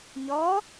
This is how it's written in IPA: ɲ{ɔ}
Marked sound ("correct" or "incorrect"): correct